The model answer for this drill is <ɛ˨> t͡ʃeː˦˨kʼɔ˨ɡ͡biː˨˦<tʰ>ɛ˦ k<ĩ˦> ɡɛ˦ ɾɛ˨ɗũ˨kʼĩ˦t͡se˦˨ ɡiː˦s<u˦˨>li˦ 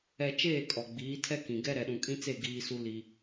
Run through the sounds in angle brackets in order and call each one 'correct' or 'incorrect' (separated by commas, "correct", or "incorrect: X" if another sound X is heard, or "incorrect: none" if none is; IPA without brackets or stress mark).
correct, correct, incorrect: ĩ˨, incorrect: u˦